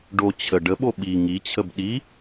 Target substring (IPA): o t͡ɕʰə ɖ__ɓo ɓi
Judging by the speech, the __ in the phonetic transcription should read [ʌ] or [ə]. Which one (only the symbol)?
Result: ə